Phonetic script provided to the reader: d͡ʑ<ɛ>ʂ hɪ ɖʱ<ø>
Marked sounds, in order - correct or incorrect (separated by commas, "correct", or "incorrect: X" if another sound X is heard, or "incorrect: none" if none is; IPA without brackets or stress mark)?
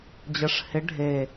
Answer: incorrect: ə, incorrect: e